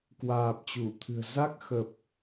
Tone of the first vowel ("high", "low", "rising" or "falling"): low